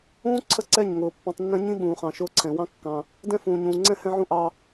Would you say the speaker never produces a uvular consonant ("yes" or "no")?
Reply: no